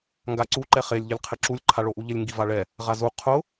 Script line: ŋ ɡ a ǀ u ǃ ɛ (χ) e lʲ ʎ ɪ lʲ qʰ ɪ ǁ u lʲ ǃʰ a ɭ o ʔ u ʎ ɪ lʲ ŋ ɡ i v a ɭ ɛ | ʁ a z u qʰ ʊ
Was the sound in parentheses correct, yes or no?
yes